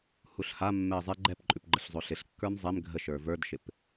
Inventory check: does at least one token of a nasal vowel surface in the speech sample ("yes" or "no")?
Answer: no